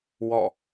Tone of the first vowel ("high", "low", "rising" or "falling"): falling